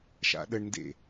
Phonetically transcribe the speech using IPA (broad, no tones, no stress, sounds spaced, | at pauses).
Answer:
ʃ a̰ ɗ ə ɳ n d ḛ